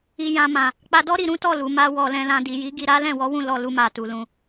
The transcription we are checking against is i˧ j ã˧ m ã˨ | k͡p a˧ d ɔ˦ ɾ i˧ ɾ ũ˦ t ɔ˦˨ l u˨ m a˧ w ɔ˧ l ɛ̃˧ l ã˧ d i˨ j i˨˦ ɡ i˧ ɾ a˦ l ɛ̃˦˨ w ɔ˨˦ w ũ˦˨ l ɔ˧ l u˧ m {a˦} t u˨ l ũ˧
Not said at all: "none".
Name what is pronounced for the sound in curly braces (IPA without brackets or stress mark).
a˨